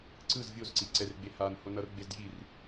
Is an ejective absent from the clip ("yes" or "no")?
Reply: yes